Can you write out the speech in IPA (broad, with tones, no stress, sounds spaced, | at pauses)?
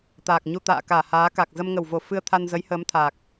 t̪ aː˨˩ k̚ ɲ u˧ t̪ a̰ː˧˨ k aː˧˩ h aː˨˦ k a˨˩ k̚ z ə˧ m ŋ ə˧˩ w v o˧˩ f ɨ˧ ə̯ t̪ʰ a˧ n z ə˨˦ j h əː˨˦ m t̪ʰ a˨˩ k̚